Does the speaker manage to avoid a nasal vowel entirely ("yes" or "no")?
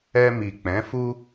no